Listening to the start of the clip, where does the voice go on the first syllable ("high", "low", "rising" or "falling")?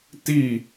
falling